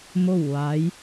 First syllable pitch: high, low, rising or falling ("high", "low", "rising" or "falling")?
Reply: falling